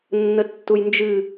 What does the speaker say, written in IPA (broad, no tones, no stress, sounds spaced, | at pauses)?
nː ə tː u j n d͡ʒ ɨ